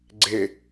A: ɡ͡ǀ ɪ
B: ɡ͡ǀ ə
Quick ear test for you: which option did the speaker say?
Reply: A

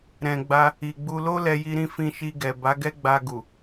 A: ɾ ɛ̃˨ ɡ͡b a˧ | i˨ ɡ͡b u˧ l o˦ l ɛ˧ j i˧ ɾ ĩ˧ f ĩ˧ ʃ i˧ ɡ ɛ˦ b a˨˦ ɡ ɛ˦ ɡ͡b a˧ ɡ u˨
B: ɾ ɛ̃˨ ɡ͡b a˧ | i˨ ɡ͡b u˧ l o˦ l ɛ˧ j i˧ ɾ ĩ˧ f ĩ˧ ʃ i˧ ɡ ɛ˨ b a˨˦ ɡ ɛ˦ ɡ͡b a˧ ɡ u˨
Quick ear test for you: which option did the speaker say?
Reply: B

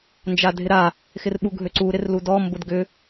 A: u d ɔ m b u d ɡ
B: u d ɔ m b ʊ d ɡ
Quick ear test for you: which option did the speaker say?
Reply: B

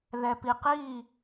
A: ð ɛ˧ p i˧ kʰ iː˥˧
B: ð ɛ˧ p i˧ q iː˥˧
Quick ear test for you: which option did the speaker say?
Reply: B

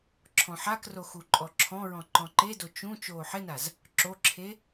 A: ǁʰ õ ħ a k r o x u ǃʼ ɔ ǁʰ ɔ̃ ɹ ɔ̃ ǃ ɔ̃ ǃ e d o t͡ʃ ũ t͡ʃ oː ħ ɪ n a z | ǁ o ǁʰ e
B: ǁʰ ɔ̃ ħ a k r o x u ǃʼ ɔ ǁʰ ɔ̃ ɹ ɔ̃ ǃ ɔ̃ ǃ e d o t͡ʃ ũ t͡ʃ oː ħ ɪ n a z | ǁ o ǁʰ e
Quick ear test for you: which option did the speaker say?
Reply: B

